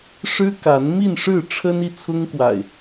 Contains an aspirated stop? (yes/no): yes